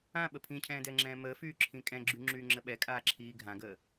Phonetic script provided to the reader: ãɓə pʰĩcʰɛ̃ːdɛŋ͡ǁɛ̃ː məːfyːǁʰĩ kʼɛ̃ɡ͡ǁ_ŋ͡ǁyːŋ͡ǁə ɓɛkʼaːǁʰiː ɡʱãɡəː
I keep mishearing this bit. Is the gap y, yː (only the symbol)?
y